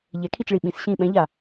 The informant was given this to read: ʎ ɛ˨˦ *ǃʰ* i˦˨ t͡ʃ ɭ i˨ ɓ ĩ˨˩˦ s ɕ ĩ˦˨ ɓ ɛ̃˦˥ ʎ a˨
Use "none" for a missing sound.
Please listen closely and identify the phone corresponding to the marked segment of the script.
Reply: kʰ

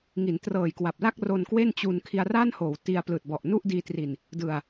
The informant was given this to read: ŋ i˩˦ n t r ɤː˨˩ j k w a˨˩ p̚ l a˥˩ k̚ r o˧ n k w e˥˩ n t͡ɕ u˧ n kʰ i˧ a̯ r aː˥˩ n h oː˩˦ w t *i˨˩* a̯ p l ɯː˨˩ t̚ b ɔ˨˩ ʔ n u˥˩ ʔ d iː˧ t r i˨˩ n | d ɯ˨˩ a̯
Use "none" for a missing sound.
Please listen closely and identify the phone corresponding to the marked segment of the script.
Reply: i˧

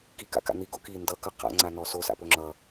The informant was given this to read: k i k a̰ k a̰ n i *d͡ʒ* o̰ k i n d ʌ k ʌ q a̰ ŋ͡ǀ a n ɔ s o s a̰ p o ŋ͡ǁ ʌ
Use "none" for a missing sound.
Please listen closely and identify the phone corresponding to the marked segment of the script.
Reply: ɡ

